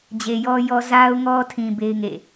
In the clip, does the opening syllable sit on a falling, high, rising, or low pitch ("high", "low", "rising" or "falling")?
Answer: low